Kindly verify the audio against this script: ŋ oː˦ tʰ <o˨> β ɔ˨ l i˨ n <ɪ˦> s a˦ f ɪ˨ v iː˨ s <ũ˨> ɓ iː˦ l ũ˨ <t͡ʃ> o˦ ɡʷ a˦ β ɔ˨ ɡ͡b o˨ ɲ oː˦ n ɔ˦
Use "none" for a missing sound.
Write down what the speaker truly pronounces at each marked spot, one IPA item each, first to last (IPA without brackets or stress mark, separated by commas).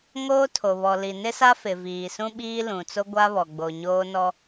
o˨, ɪ˦, ũ˦, t͡s